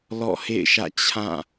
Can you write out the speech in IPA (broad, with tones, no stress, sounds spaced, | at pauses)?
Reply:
l ɔ̰˦˨ h ḛ˦˨ ɪ̯ ʃ ä̰˦˨ t͡ɕʰ ã˦˨